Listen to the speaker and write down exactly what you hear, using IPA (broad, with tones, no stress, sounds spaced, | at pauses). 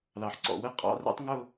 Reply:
ð ɑ˩ ħ ǀ ɔ̰˧˩ w ɘ˥ qʼ ɑ̰˧˥˧ r ɛ̰˥ tˤ ŋ ʊ˥˧